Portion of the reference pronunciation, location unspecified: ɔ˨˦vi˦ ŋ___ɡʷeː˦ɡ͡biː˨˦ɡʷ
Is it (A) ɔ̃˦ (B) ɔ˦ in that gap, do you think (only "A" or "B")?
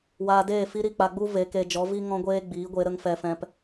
A